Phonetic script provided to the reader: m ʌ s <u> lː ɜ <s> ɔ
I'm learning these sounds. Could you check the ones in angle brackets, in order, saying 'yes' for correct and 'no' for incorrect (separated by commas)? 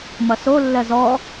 no, no